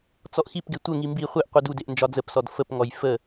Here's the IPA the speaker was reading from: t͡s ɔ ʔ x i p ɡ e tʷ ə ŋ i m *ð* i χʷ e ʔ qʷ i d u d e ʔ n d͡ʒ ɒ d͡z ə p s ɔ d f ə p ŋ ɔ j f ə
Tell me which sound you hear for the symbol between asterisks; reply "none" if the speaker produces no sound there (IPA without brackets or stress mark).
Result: b